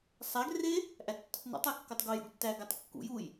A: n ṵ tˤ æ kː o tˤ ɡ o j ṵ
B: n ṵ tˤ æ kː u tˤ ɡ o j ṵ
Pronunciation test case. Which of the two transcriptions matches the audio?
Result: A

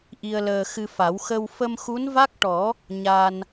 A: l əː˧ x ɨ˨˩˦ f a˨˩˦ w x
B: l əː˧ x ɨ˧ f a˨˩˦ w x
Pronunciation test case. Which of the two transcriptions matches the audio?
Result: B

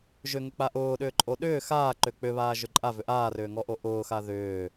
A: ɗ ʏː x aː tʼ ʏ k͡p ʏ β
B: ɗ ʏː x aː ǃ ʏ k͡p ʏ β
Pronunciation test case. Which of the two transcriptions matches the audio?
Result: B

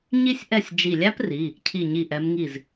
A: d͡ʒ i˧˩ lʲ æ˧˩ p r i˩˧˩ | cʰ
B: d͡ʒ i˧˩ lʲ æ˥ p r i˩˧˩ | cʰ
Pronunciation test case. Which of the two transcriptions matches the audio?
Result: B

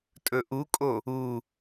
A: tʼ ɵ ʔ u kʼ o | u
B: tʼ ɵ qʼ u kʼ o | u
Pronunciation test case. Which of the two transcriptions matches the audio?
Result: A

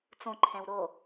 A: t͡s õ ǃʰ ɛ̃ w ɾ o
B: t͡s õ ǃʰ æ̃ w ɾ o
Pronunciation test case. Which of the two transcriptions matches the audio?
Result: A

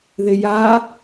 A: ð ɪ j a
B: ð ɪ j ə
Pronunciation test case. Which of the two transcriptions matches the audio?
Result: A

